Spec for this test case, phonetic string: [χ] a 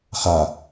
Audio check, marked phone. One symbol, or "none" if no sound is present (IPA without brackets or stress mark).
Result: χ